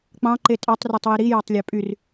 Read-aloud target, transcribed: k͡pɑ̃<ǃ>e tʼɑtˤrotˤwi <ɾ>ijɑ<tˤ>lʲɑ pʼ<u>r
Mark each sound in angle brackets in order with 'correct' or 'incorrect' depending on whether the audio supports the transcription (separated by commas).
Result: correct, correct, correct, incorrect